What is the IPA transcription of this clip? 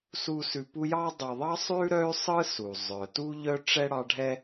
su˨ sʉ˨pu˦jɑ˥ dˤœ˨ðˤɑ˥sˤʉ˥ ɾœ˥y̯sˤɯ˥su˩ zˤœ˩tu˥ ʎœ˥ʈ͡ʂɛ˥ɽɑ˦ɖʱɛ˥

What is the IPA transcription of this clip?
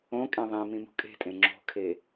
õkʼẽ ðˤĩmĩ mṳkʼe̤tʼẽ ŋ͡ǁo̤kʰe

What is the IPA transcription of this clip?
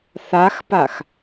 θaxpax

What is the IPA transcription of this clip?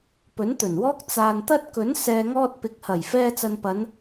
pɵ˨˥nt̪ɵ˨˩nwɔː˥k̚ t͡saː˨nt̪ɐ˥t̚ kɵ˨˥n sɛː˨ŋɔː˧t̚pɪ˨k̚hɐ˨˩j fɛː˧ t͡sɐ˨npɐ˨˧n

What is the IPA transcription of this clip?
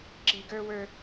ǁi˨ɡə˞˦wə˞˦

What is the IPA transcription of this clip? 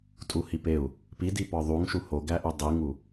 tʼuhipeu̯ | pidi pɒðˤuŋ ʃuhoɡæʔu dˤiŋu

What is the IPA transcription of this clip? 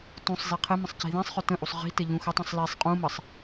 tũsˤzi qʰɘmə̃sˤ ci̤ðĩsˤχɵ tə̃ʔusˤ ʁi̤ tɘʎũxətˤũsˤ lisˤ qʼũməsˤ

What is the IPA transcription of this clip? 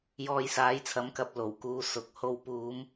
jɔː˧jsaː˨˥jt͡sʰɐ˨˥mkɐ˧p̚ lo˨˩wkuː˨˧ sʊ˨k̚ ho˨wpuː˨˧m

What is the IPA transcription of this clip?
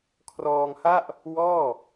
kʰrɔː˧ŋha˥˩ʔ | wɔː˥˩

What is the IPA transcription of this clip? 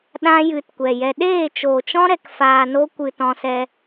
ɗã˦jɨ˧tkʷɛ˨jɛ˧ ɗeː˦˨t͡ʃoː˨t͡ʃɔ̃˦ ɾɛ˧kfaː˧no˦ kʷɨ˧tɔ̃˧sɛ˧

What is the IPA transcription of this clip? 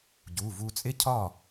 ɟu˩˧˩ vu˧ t͡sʼɪ˥cʰɒ˥˩

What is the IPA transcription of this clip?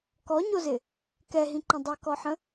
kɔɲozɪ | kɛɦĩǃə̃ dˤɪkɔħə̃

